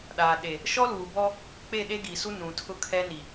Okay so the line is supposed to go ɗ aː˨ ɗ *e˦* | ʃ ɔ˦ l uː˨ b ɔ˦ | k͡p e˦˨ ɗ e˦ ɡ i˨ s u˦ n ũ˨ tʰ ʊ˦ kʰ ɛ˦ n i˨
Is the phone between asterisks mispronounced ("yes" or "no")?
yes